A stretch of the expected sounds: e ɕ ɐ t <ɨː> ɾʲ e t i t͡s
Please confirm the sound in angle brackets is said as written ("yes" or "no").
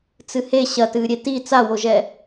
yes